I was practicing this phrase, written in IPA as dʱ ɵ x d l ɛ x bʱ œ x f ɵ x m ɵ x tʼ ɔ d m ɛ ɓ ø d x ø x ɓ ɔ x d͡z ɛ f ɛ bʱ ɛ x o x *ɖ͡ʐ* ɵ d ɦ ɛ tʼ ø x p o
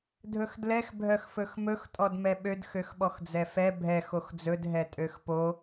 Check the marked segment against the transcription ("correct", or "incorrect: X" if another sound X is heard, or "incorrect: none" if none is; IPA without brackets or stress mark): incorrect: d͡z